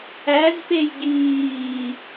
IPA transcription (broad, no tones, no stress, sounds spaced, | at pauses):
æ z p e j ɡ iː